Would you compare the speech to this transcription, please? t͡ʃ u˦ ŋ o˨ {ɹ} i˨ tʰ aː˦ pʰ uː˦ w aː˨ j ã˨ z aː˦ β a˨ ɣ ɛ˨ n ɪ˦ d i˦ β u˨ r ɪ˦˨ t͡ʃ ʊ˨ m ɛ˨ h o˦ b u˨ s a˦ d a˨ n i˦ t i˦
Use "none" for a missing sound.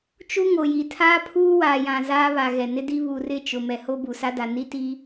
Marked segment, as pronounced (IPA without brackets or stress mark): j